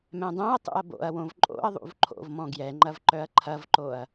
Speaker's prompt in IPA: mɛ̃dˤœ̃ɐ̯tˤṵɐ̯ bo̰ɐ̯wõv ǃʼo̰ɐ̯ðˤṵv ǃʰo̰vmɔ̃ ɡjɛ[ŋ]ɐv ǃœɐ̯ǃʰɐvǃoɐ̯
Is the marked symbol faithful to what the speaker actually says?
no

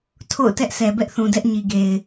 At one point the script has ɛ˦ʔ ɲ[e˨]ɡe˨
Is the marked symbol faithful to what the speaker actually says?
no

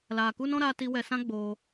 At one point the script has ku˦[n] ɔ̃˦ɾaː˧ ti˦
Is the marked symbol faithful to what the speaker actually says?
yes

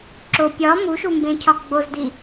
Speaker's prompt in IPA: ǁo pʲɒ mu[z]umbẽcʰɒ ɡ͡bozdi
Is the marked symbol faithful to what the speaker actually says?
no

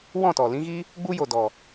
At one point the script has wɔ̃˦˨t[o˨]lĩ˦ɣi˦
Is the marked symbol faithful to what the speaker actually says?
no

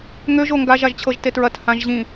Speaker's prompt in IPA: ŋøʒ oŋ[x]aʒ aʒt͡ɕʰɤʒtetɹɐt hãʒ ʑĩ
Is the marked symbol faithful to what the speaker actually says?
no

